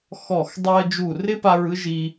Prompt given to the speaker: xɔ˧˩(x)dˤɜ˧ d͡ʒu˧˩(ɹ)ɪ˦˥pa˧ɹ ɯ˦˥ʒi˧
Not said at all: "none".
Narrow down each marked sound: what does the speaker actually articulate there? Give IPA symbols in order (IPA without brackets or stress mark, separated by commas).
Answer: x, r